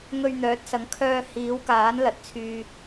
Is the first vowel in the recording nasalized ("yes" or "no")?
no